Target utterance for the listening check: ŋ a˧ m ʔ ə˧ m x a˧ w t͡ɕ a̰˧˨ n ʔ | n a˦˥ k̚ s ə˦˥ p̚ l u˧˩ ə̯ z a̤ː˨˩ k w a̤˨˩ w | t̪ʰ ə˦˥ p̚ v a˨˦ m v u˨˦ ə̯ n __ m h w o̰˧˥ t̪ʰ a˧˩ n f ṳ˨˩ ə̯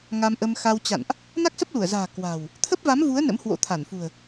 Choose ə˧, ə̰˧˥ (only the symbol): ə̰˧˥